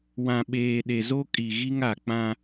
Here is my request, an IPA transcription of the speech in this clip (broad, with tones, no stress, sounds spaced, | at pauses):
w ã˨ ɓ eː˨ ɗ e˨ z o˦ kʼ i˨ ɣ i˦ ŋ a˨ k͡p ã˦